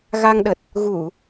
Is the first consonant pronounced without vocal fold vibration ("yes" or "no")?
no